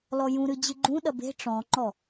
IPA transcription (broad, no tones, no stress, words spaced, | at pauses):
lɔjũɾɨ d͡ʑɨɡ͡ǃũɗɐ be̤ ʈ͡ʂɔ̃ŋ͡ǃɔ